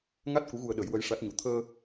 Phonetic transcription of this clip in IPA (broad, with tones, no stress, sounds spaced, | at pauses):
ŋ a˦˥ t̚ k u˧˥ ɣ u˧ ə̯ ɗ ə˨˩˦ j w ə˧˥ j ʂ a˦˥ t̚ ɲ u˧˥ t̪ʰ əː˧